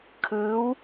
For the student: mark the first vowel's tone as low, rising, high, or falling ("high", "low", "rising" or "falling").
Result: rising